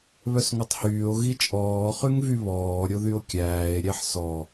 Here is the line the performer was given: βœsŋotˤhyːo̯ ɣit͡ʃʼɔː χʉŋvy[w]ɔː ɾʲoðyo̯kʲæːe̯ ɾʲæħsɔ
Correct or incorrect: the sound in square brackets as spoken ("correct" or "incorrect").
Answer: incorrect